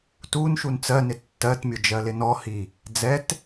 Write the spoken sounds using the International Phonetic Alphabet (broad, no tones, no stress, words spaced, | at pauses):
tunʃun t͡sɜnɪ tːɜtmʲʊ d͡ʒɜlɪnɔhi | d͡zɛt